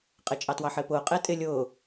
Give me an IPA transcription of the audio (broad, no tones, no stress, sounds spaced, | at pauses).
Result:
qʼ ɪ t͡ʃʼ ɑ t w ɑ ħ ɪː p ʊː qʼ ɪː tʼ ɪ lʲ ʊː